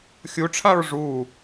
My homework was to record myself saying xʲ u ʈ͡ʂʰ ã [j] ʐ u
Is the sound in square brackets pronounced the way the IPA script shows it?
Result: no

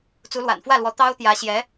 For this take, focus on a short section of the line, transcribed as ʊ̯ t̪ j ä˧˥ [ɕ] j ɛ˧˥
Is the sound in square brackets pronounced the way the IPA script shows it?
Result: yes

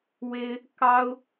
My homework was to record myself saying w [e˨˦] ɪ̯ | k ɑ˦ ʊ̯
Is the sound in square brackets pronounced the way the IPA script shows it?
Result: no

